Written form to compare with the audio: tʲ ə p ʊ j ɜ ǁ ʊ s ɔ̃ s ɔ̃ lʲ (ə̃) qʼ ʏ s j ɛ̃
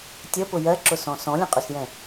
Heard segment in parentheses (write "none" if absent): ə̃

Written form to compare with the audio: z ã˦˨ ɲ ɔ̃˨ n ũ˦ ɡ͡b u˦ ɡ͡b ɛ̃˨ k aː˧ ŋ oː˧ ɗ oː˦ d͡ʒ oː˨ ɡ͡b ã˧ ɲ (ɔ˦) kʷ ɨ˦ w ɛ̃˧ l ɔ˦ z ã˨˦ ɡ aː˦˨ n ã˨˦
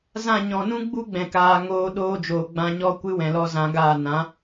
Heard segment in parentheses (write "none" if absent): ɔ˦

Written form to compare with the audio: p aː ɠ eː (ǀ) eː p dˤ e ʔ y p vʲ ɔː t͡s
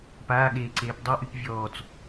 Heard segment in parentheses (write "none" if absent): ǀ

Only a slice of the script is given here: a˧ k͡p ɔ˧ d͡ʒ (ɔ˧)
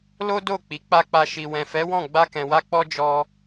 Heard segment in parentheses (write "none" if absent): ɔ˦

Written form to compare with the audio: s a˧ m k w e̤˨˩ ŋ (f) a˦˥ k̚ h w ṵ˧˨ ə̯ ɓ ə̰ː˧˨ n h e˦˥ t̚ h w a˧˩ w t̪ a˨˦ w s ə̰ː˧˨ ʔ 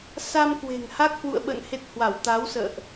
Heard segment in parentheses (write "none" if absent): h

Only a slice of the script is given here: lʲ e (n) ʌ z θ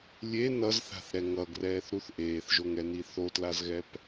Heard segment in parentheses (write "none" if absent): n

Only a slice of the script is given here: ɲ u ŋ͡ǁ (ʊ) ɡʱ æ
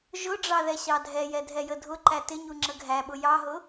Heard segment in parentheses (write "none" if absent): ə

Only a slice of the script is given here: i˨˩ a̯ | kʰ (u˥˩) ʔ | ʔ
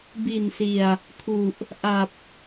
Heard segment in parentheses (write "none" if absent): u˨˩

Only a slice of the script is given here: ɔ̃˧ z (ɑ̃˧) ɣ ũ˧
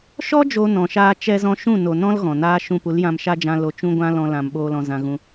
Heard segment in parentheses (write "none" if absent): ã˧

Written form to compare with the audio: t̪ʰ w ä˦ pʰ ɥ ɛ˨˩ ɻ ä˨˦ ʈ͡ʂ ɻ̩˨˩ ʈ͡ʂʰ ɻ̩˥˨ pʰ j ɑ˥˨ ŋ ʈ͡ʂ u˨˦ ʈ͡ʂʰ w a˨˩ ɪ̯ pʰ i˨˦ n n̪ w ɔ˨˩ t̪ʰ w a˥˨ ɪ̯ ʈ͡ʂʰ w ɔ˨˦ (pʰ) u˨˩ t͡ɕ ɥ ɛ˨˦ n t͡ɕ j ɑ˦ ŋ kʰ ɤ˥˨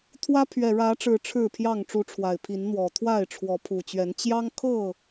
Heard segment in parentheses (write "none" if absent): pʰ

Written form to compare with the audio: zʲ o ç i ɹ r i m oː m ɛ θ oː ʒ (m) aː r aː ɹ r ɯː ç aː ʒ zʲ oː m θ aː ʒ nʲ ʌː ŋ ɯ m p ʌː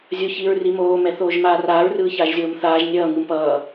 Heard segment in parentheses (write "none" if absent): m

